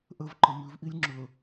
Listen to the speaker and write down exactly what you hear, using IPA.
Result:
ʔ ə v ǃ ə m ʉ v ʔ i lʲ ŋ͡ǁ ɵ

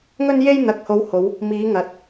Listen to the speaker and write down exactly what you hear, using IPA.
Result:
ŋ ɵ˥ n j e˥ j n̪ ɐ˨ k̚ h o˨˧ w h o˨˧ w | m iː˨˧ ŋ ɐ˨ t̚

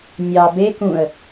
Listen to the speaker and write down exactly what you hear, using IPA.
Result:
nʲ ɑ b e k ũ ə̯

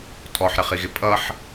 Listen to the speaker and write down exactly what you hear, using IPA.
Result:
tʼ ɔ ħ ɾ ɪ χ i ɣ ɪ pʼ ʌ ħ

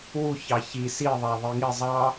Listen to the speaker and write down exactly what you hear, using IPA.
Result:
w u ç ɑ ç i s i ðˤ æ ðˤ i ŋ i zˤ ɑ

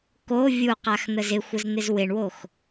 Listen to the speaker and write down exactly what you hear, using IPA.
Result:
k o vʲ u q a x n̪ ə z ɪ xʷ ə z n̪ ɪ z w ɪ ɳ w o x

